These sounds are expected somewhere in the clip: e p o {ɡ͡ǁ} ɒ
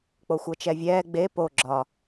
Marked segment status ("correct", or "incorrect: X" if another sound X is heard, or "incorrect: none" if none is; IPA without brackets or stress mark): correct